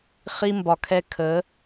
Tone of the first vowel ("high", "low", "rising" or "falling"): high